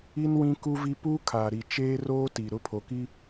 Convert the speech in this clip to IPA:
i˦ n w ĩ˦ k u˦ v i˦ p uː˦ kʰ aː˨ ɾ i˨ t͡ʃ eː˦ r oː˦ t i˨ ɾ ʊ˦ pʰ o˨ k i˦

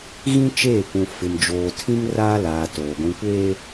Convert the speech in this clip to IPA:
ɣ ĩ˦ t͡ʃ eː˦˨ kʷ ũ˨ f ɪ˨ m d͡ʒ oː˨ tʰ ĩ˦ ŋ r aː˦ l aː˨ t oː˨ ɡʷ ĩ˨ kʷ eː˦

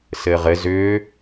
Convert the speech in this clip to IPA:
s ɘː ʁ ɘ z ʏː

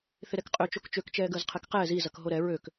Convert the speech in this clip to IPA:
θ ɪ ɾ ɛ k qʼ ø t͡ʃ o k t͡ʃ ø k t͡ʃ ɛː ɡ əː z qʰ ɛ k q ɛː z i z ɐ k ɦ o ɾ ɛ ɹ ø k

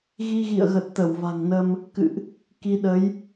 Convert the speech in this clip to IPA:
ɣ i˧ ɣ ḭ˧˨ ə̯ ɣ ə˨˩ t̚ t̪ ə˧˩ w v a̤˨˩ ŋ n ə˧ m | k ɨ̰˧˨ ʔ | k i˧ ɗ ə˨˦ j

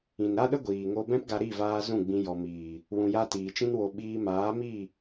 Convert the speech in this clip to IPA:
ĩ˨ n ɾ a˦ ɗ ə˦ ɡʷ iː˨ ŋ o˧ b ɛ̃˦ p ɡ a˧ ɾ i˦˨ v aː˧ z ũ˦˨ ɡ͡b ĩ˧ j ɔ˨ m iː˨ | w ũ˨ j a˧ t iː˨ t͡ʃ ĩ˦ n w o˧ ɓ iː˧ m aː˨˦ m i˦˨

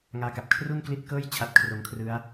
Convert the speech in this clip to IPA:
ŋ aː˦˥ k a˨˩ p̚ kʰ r u˥˩ n k l i˦˥ t̚ k ɤː˥˩ j t͡ɕʰ a˦˥ t̚ kʰ r o˧ m kʰ r ɯ˦˥ a̯

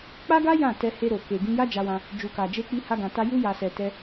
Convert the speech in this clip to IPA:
k͡p a˦ ɡ a˦ j ã˦˨ t ɛ˧ h e˧ ɾ o˨ k e˨ ɡ ĩ˧ j a˦ d͡ʒ a˧ w ã˧ | d͡ʒ u˨ k a˨ d͡ʒ e˧ k͡p i˧ h a˦ ɡ ã˧ t a˦ j u˧ j a˨ s ɛ˨ t ɛ˧

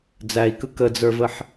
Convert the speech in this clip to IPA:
d͡z æ i̯ k ɯ k ə d͡z ə˞ v ə ħ

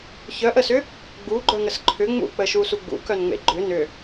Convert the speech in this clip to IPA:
ç œ ʔ ə s ʏ | ɡ͡b u ɡ͡ǃ œ ŋ ə s ǃʰ ʏ ŋ͡m ṵ k͡p ə ʃ u s u ɡ͡b ṵ k œ n ŋ͡m ḛ ɡ͡ǃ ʏ n ʏ

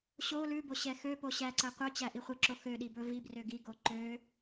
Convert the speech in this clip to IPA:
ɕ o l ʉ b o ɕ ɛ x ø p o ɕ æ ǀ æ qʷ œ t͡ɕ æ ʔ i χʷ ɛ ǁ o x ø ɗ i b ɵ v i b r ø ɡ i ɡ o ǃ ø

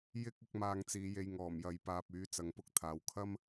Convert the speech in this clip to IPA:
j ɪ˧ k̚ ʊ˨˥ k̚ m aː˧ ŋ t͡s iː˨˧ j e˧ j ŋ ɔː˨˩ m j ɐ˨ j p aː˨ p̚ yː˨˥ t͡s ɐ˧ ŋ p ʊ˥ k̚ t̪ʰ aː˨ w kʰ ɐ˥ m

